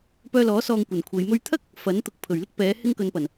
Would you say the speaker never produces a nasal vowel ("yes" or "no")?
yes